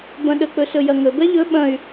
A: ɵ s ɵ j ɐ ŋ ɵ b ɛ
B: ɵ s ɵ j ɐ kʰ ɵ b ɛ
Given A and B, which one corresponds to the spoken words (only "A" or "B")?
A